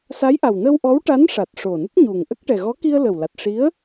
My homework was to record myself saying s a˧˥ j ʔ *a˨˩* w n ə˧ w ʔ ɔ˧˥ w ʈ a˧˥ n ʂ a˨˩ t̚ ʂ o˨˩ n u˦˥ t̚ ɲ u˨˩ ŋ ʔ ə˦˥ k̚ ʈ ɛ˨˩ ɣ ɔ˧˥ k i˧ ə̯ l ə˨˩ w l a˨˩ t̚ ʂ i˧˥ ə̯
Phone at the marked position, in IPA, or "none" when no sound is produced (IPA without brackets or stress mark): a˨˩